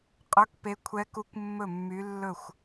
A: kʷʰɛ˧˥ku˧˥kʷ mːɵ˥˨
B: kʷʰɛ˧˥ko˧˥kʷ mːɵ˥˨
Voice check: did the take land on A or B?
A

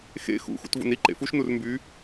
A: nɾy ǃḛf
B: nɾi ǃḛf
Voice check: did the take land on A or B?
B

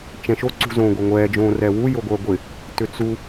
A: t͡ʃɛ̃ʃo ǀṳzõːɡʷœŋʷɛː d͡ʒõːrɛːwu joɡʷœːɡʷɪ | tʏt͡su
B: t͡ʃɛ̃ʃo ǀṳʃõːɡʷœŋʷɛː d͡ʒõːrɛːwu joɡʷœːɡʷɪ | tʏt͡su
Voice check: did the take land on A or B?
A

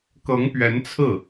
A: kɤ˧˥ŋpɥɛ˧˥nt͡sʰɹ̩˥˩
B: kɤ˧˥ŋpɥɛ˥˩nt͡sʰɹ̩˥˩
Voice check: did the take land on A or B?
A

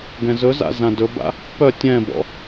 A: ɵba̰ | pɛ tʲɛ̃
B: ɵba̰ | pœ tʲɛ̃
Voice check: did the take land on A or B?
B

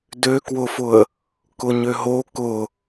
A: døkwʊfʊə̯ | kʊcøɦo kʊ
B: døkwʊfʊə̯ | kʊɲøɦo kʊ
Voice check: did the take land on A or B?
B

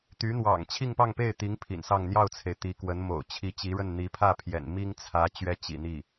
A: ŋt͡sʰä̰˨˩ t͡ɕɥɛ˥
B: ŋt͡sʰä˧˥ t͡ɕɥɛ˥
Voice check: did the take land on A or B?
B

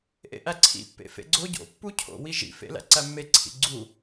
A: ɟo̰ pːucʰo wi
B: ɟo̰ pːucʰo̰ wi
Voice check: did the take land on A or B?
B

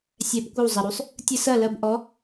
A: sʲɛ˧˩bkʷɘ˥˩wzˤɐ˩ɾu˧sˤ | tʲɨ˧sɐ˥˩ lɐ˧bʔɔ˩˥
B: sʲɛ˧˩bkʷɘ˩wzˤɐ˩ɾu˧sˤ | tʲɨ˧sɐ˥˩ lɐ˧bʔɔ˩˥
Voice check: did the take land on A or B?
A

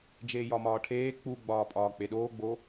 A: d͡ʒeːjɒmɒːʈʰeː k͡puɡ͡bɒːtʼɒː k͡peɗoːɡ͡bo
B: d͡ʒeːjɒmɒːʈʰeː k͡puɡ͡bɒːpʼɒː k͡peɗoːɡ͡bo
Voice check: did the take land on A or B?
B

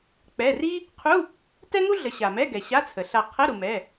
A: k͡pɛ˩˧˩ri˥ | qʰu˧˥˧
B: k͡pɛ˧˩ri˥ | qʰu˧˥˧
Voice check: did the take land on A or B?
A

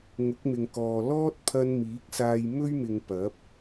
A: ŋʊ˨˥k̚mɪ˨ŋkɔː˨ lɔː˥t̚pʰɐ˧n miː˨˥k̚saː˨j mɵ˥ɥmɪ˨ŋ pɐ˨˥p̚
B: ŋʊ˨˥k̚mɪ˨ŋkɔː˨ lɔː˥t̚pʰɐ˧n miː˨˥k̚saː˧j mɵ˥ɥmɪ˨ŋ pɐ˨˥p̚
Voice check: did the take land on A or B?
B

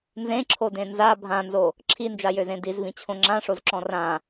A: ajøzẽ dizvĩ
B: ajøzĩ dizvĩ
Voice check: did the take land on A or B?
A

